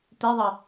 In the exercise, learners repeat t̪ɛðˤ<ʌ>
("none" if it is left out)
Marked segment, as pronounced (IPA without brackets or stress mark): ʌ